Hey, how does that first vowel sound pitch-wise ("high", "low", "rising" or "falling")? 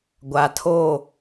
rising